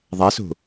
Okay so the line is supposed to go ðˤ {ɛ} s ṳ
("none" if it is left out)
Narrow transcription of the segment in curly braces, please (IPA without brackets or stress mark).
ɛ